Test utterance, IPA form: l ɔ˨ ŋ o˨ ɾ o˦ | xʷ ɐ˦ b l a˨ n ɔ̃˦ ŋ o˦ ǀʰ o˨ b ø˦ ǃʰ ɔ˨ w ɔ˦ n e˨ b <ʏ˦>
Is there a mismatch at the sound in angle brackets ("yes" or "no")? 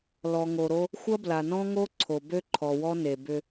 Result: no